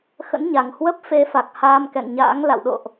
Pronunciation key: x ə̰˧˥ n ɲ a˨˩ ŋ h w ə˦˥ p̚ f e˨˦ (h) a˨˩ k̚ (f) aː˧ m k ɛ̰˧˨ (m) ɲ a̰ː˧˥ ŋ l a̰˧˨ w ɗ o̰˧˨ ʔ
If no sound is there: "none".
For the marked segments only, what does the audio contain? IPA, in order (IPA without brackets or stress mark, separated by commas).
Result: f, h, ŋ